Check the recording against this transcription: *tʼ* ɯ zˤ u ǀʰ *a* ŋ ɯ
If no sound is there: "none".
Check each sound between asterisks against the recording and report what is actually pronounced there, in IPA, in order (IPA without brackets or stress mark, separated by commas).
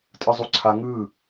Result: tʼ, a